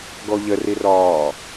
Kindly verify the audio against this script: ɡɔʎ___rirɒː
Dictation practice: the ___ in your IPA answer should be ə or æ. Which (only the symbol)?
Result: ə